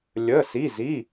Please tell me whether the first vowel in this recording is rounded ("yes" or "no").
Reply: no